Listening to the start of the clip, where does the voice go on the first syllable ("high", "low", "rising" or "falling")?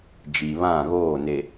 low